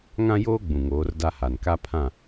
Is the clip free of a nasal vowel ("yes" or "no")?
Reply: no